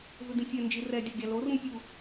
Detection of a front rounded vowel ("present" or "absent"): present